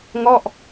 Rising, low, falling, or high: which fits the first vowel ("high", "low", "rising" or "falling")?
falling